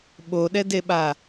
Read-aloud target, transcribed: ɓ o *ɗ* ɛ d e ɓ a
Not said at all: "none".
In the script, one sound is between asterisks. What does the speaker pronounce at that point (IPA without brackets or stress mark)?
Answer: ɗ